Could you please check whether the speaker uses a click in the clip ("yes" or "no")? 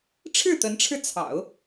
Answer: no